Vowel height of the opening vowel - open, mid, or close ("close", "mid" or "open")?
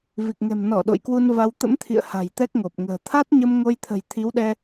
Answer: close